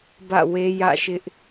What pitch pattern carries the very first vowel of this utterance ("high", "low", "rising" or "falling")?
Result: falling